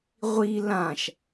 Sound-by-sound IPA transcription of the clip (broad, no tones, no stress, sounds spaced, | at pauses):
ʁʷ i l ã ʃ